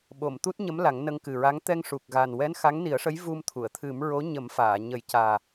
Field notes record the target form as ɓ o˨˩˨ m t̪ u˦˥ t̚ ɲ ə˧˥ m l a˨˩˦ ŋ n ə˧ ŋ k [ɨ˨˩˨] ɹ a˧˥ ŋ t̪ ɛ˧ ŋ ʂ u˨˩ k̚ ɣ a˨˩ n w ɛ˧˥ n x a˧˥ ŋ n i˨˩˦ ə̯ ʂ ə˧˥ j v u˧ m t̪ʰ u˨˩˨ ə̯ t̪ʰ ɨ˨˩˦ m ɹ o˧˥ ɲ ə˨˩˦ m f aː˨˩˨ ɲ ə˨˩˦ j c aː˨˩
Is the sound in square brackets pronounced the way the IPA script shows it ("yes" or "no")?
no